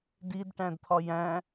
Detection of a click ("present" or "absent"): absent